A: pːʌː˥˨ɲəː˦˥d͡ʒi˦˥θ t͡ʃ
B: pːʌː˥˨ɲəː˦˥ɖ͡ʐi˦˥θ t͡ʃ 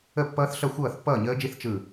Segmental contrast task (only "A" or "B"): A